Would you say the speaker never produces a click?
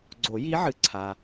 no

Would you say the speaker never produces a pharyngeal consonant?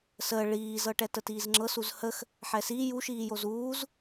no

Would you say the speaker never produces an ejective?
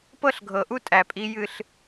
no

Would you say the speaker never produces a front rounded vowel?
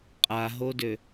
no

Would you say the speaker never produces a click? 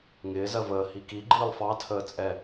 no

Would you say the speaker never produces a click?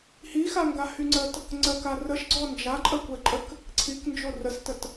no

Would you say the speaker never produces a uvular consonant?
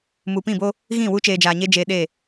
yes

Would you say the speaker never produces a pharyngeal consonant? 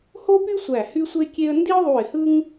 yes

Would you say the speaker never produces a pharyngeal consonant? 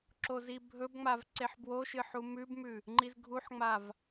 no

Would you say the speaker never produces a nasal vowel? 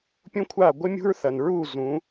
no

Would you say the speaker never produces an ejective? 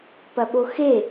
yes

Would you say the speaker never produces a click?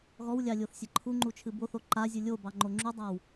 no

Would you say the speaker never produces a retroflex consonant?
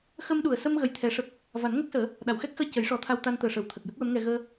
no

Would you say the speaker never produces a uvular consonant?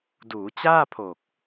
yes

